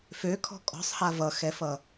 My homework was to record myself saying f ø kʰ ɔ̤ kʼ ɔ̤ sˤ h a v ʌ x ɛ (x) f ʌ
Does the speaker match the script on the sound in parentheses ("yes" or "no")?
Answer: no